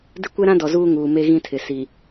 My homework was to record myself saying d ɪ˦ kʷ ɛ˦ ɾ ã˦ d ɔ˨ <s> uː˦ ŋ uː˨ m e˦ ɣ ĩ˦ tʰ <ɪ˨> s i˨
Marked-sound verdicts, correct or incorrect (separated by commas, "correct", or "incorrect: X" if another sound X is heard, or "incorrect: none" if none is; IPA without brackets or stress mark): incorrect: z, correct